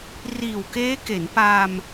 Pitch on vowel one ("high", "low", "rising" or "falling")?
low